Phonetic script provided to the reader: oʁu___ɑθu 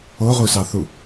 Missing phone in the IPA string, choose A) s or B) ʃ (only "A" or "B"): A